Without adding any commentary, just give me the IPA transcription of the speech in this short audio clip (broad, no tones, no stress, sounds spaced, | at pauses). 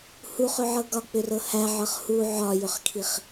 h u χ ʏ ʕ ɤ ɡ ɒ k͡p ʏ r ɤ h æ ʕ ɤ χ h u ʕ ɒ j ʏ χ kʰ i χ